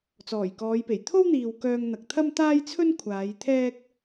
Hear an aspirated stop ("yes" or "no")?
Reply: yes